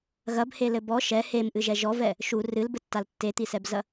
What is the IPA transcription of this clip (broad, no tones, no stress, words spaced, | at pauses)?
ɣɐbhelɘ bɔ ʃɛ hemʔɨʒɛ ʒɔvɛ | ʃu rɨlbɘtːal tːet̪isɛbzɐ